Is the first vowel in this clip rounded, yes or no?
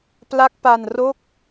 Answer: no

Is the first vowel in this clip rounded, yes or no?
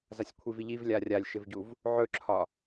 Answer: no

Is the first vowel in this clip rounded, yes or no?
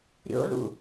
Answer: yes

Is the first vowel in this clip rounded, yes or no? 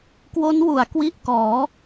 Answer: yes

